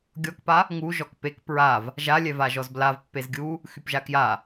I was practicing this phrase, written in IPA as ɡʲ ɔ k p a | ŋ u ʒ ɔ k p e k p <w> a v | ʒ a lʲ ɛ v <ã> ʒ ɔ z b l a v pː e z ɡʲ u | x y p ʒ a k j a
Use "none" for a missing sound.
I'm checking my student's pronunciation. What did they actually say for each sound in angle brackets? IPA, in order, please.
ɹ, a

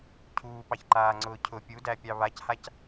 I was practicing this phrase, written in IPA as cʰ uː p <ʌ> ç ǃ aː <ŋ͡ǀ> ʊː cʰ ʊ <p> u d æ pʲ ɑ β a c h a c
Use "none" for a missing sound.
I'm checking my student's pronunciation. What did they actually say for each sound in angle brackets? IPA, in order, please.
ɑ, ŋ͡ǀ, pʲ

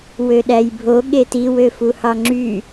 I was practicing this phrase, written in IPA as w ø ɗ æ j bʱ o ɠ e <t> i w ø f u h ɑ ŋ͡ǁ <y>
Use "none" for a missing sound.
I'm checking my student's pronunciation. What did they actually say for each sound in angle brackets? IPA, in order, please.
t, y

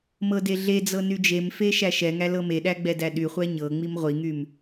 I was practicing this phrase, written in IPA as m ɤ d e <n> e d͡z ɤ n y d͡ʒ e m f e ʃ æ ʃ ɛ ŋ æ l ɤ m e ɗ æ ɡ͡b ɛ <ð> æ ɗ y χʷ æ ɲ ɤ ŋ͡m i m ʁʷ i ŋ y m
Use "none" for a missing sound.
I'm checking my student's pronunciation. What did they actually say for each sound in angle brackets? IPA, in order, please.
ɮ, d

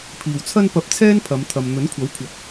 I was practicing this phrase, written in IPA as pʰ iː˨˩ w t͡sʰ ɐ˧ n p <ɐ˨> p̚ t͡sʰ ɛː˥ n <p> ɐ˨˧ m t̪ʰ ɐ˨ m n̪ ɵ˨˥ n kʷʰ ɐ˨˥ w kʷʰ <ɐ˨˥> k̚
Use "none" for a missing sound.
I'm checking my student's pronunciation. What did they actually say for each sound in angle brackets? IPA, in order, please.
ɐ˨˥, pʰ, ɐ˨˥

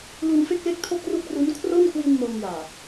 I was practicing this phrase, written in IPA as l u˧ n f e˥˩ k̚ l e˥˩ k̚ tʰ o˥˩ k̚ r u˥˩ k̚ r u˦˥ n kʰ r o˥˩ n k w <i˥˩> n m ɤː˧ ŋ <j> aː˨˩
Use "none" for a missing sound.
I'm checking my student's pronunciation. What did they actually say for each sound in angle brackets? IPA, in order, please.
i˧, j

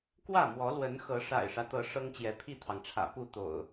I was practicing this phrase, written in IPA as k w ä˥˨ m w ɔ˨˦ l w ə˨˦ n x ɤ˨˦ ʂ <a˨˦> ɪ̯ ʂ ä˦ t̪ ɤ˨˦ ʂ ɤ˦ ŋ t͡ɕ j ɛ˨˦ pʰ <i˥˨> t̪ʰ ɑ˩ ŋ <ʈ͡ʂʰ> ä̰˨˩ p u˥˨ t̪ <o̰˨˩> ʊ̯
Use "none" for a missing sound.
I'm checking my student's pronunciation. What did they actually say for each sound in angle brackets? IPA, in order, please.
a̰˨˩, i˥˨, ʈ͡ʂʰ, o̰˨˩

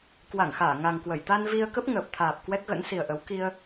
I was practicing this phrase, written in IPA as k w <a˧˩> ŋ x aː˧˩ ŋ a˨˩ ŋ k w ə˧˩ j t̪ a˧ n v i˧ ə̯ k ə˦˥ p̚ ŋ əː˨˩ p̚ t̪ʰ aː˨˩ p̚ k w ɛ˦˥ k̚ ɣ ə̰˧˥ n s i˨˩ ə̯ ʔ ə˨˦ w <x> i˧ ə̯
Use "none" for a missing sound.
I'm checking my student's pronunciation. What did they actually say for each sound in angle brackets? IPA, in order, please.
a˧˩, k

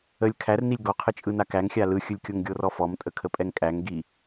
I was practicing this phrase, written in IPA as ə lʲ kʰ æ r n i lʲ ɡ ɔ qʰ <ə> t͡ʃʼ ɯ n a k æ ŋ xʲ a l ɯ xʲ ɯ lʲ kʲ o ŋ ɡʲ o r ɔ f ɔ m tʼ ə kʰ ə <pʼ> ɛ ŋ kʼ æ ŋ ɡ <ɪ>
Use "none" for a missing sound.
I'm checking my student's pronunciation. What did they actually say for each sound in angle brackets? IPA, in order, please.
ə, pʼ, i

